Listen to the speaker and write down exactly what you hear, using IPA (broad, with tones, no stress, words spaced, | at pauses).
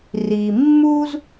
ri˩mːu˥z